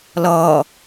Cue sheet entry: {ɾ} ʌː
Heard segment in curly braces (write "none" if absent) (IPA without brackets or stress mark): l